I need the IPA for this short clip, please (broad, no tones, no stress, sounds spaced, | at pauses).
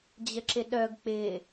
d͡ʑ ə ǁ ɪ ɗ œ ɡ k͡p ɪ